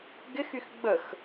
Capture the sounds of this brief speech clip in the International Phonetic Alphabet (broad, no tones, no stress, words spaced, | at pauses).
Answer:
ɡɪxyx ɡ͡bəx